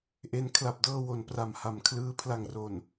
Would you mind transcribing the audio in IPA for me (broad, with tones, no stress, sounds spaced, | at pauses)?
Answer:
ʔ e˦˥ n kʰ l a˨˩ p̚ d ɤː˧ w o˩˦ n p r a˨˩ m h a˩˦ m kʰ l ɯː˧ pʰ l a˨˩ ŋ r o˨˩ n